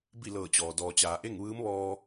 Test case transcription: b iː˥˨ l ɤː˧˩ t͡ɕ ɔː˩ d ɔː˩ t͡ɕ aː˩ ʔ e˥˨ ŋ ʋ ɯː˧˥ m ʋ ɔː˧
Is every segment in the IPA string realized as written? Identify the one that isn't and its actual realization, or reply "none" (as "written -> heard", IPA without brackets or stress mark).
iː˥˨ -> i˥˨